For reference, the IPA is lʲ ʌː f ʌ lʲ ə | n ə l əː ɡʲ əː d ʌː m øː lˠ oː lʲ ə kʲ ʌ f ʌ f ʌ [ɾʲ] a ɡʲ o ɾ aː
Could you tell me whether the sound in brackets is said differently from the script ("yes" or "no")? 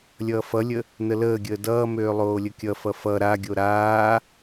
yes